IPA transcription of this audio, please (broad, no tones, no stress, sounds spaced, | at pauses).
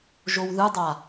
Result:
ʒ o w ð ɯ dˤ a